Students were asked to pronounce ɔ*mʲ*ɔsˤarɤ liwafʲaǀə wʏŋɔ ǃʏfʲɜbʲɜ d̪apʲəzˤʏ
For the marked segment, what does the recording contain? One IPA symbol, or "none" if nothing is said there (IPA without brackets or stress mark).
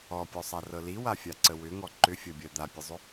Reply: pʲ